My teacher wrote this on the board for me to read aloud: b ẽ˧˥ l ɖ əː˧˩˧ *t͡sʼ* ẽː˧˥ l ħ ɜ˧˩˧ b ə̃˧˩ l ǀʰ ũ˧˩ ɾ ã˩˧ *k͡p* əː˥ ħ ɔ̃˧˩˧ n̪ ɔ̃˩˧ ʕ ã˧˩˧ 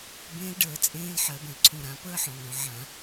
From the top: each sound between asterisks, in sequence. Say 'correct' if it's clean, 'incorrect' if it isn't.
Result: correct, incorrect

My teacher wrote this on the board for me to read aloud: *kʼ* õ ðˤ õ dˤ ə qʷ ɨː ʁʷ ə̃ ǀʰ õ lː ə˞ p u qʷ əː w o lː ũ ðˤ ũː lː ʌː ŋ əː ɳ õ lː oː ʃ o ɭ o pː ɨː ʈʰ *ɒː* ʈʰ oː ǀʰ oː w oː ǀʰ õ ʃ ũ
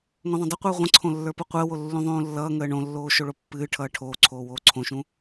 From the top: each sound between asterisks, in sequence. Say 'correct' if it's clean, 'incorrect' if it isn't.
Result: incorrect, incorrect

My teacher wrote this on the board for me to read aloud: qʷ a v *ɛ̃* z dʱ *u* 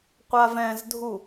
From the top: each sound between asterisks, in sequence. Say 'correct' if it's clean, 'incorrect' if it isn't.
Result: correct, correct

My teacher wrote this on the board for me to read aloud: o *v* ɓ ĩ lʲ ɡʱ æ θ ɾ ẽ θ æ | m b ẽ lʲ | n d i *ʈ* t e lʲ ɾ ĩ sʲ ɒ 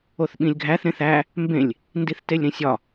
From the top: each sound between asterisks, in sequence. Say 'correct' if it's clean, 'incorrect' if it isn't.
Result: incorrect, incorrect

